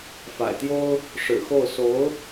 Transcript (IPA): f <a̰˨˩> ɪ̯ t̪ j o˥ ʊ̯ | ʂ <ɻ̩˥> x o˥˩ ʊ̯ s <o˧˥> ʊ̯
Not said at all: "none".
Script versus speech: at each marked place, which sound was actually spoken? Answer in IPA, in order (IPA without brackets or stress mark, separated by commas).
a̰˨˩, ɻ̩˨˩, o˧˥